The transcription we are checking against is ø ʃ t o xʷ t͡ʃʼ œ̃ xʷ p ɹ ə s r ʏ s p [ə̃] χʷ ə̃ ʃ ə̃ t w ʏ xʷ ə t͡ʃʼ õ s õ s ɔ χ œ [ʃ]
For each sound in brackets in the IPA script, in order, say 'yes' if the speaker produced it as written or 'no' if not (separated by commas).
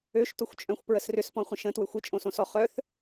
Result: no, no